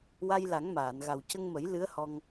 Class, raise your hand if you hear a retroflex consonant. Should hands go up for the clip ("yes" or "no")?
no